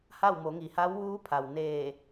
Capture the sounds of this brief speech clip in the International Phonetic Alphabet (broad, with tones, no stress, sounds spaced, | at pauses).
h a˥˨ w m o˩˧ ŋ i˩ h a˧˥ w ʋ uː˧˥ pʰ a˩ w n eː˧˩